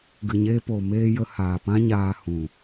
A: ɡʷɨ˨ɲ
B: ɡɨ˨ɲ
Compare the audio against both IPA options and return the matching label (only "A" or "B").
B